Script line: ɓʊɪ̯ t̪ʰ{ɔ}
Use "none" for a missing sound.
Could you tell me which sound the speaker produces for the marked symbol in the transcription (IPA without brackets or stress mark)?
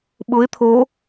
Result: o